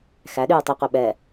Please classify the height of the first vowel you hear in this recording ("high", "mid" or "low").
low